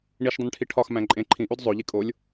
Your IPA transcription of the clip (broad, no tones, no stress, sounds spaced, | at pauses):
ɳ i ʃ dˤ ĩ n ʈʰ i ʈʰ ɒ x m æ̃ ǃʼ ẽ ǃʰ ĩ ʔ u d zˤ o ʎ i kʼ o lʲ